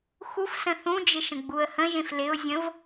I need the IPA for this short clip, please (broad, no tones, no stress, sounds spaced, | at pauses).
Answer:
x u f s ə̃ θ ũ d͡ʒ ɪ ʃ ə̃ ɡ͡b u ə̯ h ə̃ ʒ ẽ f l ɪ ʊ̯ zʲ ə̃ v